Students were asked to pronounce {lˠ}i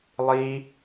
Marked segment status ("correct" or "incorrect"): correct